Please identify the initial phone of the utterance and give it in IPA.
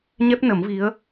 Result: ɲ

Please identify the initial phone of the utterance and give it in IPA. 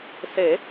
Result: s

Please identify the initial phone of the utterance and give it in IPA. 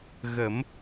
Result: ɣ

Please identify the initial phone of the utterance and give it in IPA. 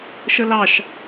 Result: ʃ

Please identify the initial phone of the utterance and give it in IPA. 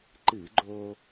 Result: ǃ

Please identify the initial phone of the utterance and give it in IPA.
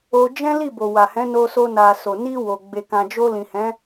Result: o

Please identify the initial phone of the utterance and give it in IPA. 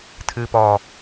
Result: tʰ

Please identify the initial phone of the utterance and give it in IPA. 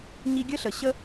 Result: ɲ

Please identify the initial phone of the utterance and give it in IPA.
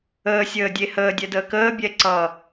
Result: əː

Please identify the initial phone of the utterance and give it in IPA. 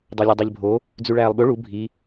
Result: dˤ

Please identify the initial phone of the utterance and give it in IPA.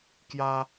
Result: k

